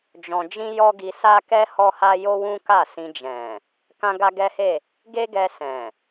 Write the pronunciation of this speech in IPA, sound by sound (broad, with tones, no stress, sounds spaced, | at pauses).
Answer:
d͡ʒ ɔ̃˧ d͡ʒ ĩ˦ j ɔ˦ ɡ i˧ s a˦ k ɛ˦ h ɔ˦ h a˦ j o˦ w ũ˦ k a˦˨ s ĩ˧ d͡ʒ ɛ̃˨ | k ã˦ ɡ a˦ ɡ ɛ˦ h e˦˨ | ɡ e˦ ɡ ɛ˧ s ɛ̃˨